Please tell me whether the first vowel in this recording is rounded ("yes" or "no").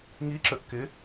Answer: no